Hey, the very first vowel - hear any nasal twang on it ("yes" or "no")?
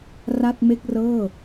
no